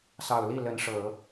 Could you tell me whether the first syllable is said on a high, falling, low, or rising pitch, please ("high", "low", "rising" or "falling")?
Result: low